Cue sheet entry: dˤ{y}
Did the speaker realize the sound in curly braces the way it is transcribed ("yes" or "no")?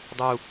no